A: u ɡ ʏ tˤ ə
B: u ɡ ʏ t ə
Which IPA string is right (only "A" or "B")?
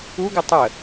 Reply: A